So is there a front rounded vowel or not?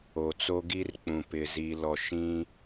no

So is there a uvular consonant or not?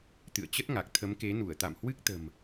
no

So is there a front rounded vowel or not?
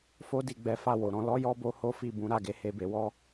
no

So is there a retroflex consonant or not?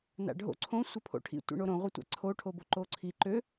yes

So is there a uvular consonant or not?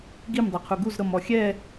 yes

